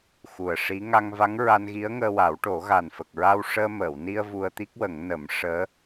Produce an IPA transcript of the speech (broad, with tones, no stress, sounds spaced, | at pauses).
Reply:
x u˨˩ ə̯ ʂ i˧˥ ŋ a˧ ŋ v a˧˥ ŋ ɹ a˧ n ɣ i˧˥ ə̯ ŋ əː˧ w a˨˩˦ w ʈ o˨˩˦ ɣ a˨˩ n f ə˨˩ k̚ ɹ a˧ w ʂ əː˧ m əː˨˩˨ w n i˧ ə̯ v u˧ ə̯ t̪ i˦˥ k̚ w ə˨˩˦ ŋ n ə˨˩˦ m ʂ əː˧˥